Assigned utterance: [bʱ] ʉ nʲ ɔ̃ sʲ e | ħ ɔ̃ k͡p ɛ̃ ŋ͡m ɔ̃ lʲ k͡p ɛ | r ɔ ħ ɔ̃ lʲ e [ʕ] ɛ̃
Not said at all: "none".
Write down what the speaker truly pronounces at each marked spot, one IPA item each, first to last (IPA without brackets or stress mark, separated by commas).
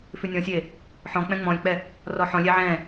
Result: f, ʕ